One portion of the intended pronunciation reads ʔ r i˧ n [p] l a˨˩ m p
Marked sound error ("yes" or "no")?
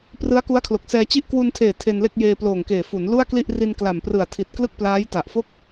yes